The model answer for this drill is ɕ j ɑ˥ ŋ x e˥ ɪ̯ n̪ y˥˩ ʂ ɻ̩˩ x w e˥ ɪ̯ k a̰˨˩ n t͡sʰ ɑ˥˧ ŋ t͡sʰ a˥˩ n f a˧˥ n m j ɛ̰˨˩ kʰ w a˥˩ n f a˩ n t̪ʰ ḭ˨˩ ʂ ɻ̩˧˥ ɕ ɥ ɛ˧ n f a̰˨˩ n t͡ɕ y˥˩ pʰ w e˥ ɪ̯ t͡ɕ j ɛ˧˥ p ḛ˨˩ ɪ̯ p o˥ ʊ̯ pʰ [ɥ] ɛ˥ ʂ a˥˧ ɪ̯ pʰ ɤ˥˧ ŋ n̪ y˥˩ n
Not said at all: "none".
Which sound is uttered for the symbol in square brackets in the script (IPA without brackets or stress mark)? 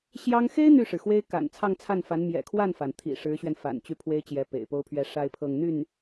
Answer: ɥ